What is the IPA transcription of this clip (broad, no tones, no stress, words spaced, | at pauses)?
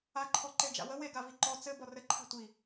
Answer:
aǃʰɔ ǃed͡ʒa̰wə weɡavi ǃɔ t͡sɘ bɔrɘǃʰa̤ tʷi